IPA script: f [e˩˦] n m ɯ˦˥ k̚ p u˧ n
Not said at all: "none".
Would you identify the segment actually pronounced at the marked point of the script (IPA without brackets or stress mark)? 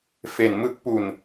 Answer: e˩˦